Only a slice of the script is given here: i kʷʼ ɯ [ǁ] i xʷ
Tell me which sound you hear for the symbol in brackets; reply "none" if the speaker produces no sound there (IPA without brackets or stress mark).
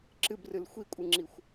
ŋ͡ǁ